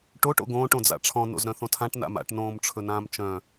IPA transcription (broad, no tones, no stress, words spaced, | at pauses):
ʈoʈ o̰ɡõːʈ õd͡za̰ʈ͡ʂʰɔ̃ no̰zɾœ̃θõtʰãʈ na̰ma̰ʈ nõːmʈ͡ʂʰɵnãːmt͡ʃœ̃